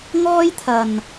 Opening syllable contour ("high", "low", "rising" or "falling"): high